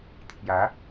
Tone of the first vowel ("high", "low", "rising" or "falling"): rising